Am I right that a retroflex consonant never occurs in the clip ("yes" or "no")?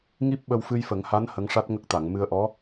no